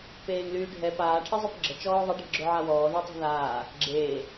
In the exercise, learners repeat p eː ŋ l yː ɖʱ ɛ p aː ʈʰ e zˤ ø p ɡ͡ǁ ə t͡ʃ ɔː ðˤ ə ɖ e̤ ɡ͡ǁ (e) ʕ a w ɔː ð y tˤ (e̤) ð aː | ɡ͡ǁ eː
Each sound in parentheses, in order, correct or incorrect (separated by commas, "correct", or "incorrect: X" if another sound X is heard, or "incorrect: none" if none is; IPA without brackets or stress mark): incorrect: ø, correct